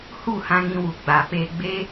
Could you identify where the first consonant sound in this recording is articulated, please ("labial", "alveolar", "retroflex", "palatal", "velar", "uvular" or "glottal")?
glottal